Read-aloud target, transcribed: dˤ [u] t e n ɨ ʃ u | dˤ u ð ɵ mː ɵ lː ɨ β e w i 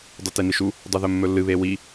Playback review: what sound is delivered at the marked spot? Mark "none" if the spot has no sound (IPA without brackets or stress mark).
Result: ʉ